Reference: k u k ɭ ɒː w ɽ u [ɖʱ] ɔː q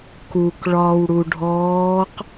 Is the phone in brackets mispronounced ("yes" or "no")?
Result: no